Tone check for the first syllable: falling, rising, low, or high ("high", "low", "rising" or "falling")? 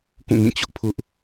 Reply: falling